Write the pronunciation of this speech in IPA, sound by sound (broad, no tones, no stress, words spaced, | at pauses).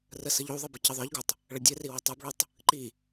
rəsəʎuðˤɘ bəcɘðˤə˞ʎɡotˤ | ɭədʲɘri wɘtˤubɭutˤ | ǃi